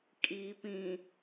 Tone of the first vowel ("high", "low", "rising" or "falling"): low